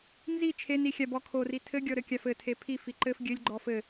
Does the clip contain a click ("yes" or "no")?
yes